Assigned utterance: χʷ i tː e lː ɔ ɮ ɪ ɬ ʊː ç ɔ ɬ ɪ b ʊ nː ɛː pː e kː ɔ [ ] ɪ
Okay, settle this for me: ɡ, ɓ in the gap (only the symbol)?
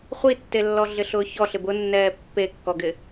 ɡ